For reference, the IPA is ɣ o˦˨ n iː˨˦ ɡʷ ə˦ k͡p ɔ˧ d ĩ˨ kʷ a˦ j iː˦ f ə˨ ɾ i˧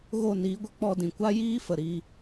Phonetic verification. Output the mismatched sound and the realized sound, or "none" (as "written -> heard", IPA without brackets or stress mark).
i˧ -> iː˧